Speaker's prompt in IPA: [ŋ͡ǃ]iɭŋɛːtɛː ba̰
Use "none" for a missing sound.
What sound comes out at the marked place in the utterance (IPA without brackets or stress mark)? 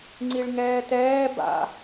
ŋ͡ǀ